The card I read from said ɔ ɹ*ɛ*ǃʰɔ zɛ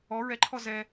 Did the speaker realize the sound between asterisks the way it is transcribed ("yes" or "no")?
yes